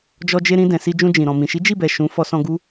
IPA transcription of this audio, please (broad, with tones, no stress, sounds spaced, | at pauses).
d͡ʒ ɔ˧ d͡ʒ e˧ ɾ ĩ˧ d ɛ̃˨ s i˧ d͡ʒ ũ˧ d͡ʒ ĩ˨ ɾ ɔ̃˨ m ĩ˨ ʃ i˨˦ d͡ʒ i˦˨ b ɛ˨ ʃ ũ˨˦ f ɔ˧ s ɔ̃˧ ɡ u˦